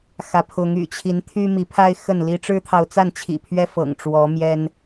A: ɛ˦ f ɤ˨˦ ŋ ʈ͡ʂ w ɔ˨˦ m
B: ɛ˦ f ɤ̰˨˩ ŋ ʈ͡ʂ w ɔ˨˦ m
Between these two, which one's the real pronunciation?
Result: B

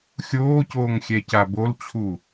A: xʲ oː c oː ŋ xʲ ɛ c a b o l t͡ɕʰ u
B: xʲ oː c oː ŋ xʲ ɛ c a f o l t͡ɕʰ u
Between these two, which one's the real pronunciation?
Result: A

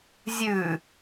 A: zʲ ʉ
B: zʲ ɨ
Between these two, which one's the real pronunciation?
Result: A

